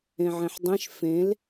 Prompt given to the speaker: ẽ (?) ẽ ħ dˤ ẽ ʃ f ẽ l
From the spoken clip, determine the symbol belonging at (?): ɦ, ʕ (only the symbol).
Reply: ʕ